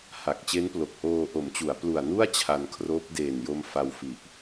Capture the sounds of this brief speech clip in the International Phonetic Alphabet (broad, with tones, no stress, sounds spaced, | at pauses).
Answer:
h a˨˩ k̚ t͡ɕ e˦˥ n p l o˨˩ k̚ h oː˧ ʔ o˩˦ m t͡ɕ u˩˦ a̯ p l u˨˩ a̯ n u˥˩ a̯ t͡ɕʰ a˧ n kʰ r oː˦˥ p̚ d eː˨˩ n j o˧ m f a˧ w f i˨˩ ʔ